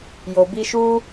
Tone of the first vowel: low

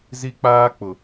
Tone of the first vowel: high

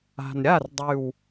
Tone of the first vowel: low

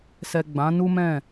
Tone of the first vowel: low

